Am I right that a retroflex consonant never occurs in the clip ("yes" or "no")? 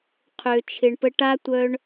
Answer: no